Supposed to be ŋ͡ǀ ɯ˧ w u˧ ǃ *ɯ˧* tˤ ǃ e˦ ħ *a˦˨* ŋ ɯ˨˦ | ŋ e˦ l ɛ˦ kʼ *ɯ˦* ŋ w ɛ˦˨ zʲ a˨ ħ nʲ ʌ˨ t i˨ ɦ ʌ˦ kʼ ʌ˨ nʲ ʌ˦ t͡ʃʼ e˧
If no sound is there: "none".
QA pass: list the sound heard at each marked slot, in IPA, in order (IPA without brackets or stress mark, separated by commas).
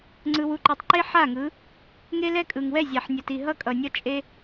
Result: ɯ˨, a˦˨, ɯ˨